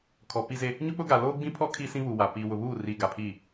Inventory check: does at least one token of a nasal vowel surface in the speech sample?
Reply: yes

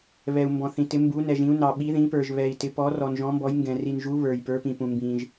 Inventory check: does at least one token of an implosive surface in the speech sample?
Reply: yes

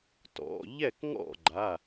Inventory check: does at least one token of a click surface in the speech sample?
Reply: yes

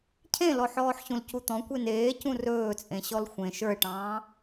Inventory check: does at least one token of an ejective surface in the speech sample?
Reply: yes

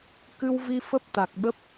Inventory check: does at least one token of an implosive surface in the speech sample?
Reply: yes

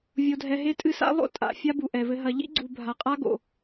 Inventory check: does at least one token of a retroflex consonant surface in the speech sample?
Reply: no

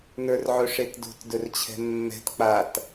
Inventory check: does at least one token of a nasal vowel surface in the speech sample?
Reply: no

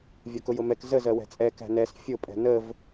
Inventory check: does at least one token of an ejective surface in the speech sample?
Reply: yes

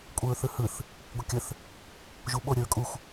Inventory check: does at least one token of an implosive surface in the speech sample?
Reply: yes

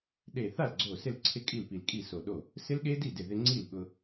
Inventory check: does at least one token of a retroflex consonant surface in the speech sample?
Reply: no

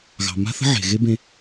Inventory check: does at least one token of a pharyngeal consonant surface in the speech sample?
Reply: yes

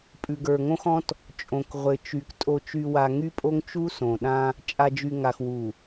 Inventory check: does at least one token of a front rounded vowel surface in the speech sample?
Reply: yes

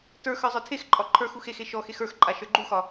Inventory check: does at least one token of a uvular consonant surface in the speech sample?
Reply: no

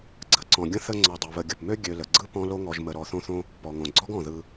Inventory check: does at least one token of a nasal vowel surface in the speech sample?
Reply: yes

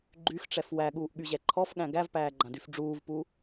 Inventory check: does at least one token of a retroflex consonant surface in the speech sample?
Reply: yes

